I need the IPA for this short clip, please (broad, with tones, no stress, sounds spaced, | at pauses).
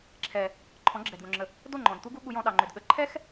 ǁʰ ɛ˨ | ǃʰ ɔ̃˨˦ ɡ͡ǁ ɛ˨ d ɡ õ˨ ŋ͡ǁ ə˨ | d o˦˨ ŋ͡ǃ ɔ̃˨ d t̪ u˦ ɡ u˦ ɠ u˧ j ɔ̃˧ ɗ ɑ˨ ŋ͡ǃ ʏ˨ d ɠ ə˨ ǃʰ ɛ˦ x